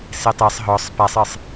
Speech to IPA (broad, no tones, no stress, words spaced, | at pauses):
setˤesˤ ɦɔsˤ pasˤɨsˤ